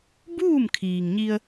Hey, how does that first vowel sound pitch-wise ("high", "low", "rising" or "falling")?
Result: falling